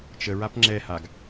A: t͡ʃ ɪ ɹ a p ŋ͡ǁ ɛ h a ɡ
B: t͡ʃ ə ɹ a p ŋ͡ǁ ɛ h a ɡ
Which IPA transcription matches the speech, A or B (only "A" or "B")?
B